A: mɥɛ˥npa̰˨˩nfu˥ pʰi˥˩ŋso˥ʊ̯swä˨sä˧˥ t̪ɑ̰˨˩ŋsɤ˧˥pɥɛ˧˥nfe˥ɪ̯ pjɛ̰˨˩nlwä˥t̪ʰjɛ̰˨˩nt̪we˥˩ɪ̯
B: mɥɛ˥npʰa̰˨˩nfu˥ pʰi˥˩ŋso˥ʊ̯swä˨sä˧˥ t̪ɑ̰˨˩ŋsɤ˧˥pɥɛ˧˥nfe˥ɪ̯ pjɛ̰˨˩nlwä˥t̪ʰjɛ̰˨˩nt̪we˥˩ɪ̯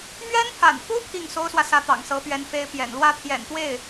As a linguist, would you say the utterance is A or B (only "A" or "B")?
B